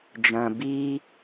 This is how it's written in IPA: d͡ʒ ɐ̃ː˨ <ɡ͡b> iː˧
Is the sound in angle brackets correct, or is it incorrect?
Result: incorrect